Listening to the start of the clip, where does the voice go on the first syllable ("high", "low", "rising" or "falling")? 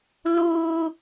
high